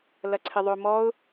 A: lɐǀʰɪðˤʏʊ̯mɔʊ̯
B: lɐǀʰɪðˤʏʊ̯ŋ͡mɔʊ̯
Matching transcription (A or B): A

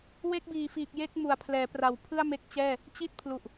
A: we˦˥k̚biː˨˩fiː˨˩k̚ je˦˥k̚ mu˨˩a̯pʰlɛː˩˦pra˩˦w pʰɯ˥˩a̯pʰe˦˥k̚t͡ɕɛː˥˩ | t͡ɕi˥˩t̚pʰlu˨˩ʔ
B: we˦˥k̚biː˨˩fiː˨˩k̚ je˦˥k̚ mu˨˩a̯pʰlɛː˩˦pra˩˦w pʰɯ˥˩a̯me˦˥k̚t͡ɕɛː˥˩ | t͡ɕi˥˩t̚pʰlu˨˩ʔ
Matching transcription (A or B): B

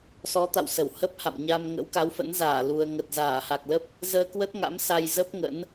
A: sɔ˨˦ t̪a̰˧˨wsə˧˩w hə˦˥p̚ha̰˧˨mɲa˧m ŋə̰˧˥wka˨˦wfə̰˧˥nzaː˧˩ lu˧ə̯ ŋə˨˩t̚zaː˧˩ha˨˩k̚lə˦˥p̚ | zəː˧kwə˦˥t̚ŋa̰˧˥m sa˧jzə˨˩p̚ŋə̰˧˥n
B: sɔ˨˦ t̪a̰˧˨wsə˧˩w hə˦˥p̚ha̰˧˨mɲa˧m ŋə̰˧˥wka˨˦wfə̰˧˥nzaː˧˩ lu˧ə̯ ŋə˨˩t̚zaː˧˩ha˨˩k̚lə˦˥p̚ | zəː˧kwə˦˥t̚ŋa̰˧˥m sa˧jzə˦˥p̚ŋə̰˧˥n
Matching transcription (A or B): B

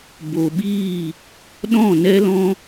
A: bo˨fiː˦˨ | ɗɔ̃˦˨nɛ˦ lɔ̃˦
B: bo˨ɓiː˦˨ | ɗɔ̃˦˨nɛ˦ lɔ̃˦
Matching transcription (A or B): B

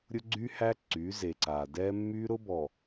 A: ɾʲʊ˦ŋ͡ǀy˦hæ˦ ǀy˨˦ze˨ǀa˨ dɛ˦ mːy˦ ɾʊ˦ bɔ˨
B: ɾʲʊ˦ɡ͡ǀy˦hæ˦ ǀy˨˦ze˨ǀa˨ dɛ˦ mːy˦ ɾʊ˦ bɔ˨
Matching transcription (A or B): B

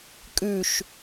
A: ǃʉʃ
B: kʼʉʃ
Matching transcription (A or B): B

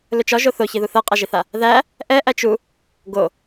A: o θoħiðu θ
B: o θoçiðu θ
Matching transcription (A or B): B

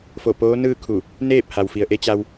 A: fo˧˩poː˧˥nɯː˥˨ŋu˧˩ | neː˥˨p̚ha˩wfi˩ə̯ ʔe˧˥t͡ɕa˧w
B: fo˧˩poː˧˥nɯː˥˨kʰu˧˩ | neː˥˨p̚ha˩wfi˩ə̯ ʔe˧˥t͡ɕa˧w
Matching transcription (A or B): B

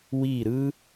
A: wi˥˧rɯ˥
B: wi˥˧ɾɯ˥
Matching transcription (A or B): B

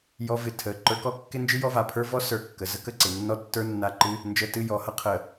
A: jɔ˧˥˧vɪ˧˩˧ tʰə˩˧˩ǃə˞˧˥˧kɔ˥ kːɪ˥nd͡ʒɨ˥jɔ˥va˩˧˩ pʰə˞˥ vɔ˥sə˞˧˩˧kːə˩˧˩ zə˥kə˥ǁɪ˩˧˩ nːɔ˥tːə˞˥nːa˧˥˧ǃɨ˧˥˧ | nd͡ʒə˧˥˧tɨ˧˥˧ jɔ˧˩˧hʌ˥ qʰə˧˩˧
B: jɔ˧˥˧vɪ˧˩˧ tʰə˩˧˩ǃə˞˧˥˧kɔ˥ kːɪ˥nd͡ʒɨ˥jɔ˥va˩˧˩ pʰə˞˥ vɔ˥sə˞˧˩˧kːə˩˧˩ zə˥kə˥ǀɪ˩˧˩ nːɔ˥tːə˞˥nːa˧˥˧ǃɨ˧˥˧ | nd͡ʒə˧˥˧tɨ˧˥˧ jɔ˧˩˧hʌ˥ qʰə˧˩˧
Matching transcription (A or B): B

